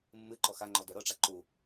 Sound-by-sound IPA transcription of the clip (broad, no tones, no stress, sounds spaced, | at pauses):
mː ɨ ǃ ɔ x a ŋ͡ǃ ɔ d œ ɾ ɤ ʈ͡ʂ a ǃ u